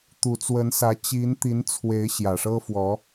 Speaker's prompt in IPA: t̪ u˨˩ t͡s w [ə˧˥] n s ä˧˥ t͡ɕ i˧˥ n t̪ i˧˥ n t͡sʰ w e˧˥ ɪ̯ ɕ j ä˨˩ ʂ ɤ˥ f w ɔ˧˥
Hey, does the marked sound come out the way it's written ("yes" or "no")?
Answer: yes